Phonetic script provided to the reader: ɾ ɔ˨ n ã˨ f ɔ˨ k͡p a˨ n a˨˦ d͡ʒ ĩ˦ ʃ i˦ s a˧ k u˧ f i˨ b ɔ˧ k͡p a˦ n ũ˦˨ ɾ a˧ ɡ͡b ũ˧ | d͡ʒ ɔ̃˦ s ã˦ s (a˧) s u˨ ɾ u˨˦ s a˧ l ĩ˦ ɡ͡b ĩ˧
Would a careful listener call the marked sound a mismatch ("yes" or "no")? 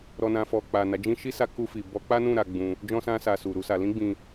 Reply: no